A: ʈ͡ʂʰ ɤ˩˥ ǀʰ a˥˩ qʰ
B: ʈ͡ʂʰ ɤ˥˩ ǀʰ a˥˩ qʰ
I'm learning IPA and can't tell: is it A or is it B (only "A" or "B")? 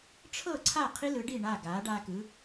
B